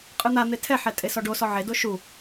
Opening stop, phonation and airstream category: ejective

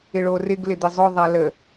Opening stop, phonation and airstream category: plain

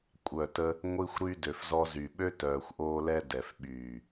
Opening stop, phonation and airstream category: ejective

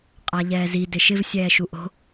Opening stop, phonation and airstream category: ejective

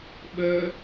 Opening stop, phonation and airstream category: implosive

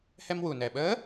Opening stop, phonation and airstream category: implosive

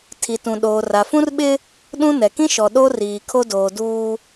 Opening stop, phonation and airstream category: aspirated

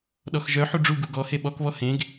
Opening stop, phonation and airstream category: implosive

